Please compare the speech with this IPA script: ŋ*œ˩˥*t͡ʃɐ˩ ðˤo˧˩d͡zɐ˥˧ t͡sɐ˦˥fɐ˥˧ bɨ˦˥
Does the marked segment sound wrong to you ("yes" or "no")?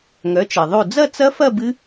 no